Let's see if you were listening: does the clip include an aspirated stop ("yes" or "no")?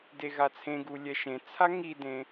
yes